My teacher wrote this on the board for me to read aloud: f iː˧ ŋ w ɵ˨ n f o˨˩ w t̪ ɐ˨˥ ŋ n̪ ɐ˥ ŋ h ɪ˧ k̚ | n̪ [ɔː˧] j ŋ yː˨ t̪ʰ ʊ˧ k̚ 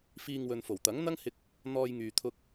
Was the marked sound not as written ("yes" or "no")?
no